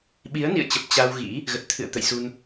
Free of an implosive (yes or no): no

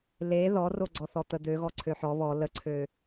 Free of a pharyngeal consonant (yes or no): no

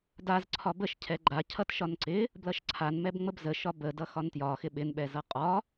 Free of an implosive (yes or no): no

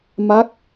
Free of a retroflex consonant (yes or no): yes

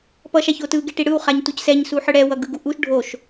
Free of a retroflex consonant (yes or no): no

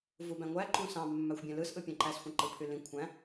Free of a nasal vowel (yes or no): no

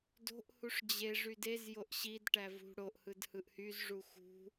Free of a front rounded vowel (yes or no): no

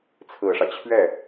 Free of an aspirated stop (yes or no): no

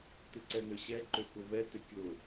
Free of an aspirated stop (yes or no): yes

